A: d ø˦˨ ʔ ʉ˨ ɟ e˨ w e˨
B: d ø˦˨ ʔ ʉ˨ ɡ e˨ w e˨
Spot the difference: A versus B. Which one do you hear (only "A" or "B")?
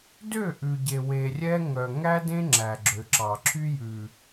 A